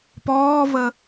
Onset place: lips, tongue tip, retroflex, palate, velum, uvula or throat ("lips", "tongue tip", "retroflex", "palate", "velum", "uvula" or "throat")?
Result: lips